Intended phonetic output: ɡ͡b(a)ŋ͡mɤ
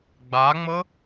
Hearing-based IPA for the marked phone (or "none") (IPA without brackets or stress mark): a